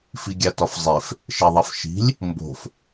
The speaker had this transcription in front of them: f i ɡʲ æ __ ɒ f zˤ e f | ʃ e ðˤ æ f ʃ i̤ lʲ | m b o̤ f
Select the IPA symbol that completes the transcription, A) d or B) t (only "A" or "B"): B